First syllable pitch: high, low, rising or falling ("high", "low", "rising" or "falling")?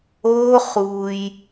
high